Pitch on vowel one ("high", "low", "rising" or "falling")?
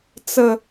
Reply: low